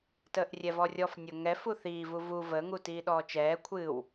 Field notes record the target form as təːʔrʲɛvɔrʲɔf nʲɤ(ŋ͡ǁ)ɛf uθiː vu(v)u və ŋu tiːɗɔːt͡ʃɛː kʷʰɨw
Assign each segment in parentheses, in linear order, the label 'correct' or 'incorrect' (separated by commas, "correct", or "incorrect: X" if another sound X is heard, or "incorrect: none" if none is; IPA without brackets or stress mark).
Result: incorrect: ŋ, correct